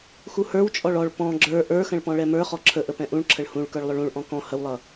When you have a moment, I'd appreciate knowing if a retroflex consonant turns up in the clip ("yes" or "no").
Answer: yes